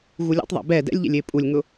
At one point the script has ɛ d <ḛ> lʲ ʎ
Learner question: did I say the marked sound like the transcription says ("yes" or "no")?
no